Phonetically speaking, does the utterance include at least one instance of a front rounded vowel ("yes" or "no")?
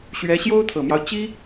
no